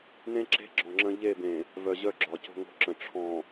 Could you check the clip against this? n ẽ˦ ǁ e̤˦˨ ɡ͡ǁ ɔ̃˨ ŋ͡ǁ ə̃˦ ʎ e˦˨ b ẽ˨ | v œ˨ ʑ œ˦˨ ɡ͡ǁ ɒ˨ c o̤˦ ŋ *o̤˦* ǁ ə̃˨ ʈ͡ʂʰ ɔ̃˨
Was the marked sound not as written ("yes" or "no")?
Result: no